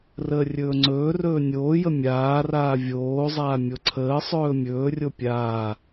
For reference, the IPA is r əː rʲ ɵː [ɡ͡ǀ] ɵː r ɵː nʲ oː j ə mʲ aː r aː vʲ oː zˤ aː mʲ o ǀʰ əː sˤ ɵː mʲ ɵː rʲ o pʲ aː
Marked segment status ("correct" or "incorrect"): incorrect